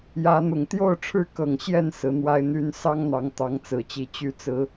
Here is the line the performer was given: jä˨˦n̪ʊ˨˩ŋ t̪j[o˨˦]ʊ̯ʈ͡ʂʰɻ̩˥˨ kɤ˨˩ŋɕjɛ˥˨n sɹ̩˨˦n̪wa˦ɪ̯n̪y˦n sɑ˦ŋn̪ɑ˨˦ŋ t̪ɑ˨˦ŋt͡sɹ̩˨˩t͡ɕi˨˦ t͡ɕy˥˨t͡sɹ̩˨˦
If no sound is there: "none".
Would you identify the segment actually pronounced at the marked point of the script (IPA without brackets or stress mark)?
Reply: o˥˨